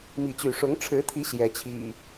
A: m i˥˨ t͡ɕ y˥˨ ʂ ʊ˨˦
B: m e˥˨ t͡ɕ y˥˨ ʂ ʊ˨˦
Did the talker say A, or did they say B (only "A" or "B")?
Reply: A